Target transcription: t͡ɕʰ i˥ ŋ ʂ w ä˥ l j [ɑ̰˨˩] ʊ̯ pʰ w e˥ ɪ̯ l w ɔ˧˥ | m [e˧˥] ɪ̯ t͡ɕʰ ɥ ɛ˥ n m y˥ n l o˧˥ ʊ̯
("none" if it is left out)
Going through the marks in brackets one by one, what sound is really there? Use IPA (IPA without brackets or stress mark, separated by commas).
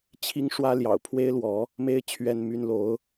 ɑ̰˨˩, e˥